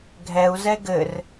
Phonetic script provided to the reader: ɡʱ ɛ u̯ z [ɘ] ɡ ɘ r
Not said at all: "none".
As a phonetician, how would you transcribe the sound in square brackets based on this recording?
ɛ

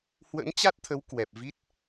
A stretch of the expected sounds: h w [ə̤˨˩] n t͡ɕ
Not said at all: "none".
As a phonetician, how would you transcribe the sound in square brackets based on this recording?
ə̰˧˥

